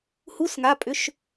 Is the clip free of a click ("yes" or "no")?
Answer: yes